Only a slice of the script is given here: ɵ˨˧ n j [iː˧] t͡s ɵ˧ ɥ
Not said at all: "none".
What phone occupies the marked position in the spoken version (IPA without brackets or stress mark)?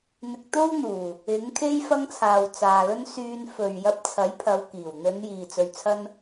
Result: iː˨